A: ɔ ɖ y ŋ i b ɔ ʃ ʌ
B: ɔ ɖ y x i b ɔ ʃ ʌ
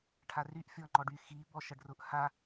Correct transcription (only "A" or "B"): B